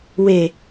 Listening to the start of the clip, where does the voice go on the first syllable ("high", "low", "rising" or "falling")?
low